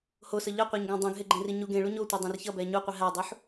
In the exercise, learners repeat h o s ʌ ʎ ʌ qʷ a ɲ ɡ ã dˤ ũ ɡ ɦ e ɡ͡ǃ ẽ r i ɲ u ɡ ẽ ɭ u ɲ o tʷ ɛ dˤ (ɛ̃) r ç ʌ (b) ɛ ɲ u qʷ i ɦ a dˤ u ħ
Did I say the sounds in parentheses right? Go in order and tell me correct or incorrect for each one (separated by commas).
correct, correct